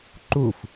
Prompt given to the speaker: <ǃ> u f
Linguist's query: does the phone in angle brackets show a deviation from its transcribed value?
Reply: no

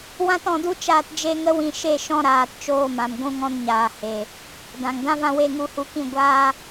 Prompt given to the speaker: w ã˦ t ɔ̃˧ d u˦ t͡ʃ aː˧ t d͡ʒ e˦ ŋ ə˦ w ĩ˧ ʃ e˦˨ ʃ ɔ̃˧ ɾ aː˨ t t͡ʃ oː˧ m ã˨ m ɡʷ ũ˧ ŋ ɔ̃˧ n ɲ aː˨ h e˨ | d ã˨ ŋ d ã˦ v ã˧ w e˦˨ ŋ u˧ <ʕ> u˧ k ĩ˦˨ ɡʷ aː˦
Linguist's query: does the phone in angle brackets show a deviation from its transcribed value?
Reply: yes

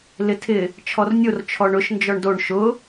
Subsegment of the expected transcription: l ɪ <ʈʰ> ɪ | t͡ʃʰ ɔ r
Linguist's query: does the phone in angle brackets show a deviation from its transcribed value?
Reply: yes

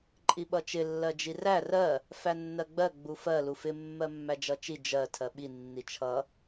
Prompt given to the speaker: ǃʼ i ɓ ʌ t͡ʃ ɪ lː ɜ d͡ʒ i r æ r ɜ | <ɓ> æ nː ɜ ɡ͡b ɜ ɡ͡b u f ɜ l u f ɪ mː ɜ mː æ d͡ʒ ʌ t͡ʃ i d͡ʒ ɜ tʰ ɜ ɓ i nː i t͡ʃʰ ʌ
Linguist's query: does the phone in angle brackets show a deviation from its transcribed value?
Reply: yes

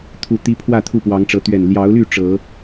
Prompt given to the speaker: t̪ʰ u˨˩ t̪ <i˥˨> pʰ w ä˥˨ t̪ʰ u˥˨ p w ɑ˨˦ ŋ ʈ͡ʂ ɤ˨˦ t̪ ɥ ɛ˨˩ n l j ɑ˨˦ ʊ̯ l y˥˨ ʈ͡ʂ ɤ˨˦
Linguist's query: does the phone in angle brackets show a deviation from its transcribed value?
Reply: yes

